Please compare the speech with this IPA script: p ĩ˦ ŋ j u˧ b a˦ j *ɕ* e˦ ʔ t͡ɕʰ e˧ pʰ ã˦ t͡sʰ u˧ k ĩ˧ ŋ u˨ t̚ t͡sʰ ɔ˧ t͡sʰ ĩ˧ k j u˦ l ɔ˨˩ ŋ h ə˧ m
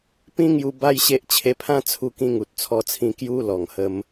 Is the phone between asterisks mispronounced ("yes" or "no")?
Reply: no